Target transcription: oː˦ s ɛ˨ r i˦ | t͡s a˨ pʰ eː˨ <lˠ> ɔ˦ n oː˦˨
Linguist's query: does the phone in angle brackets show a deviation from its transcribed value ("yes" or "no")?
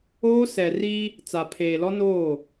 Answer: yes